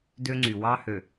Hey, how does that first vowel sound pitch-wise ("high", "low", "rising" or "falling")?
high